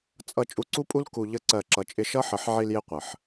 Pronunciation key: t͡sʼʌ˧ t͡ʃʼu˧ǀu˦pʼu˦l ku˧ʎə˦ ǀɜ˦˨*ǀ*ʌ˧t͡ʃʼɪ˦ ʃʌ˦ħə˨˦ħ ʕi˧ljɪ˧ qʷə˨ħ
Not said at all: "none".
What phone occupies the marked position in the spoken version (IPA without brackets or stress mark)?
ǁ